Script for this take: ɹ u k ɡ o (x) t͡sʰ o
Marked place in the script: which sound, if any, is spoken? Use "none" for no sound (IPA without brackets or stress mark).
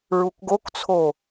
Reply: k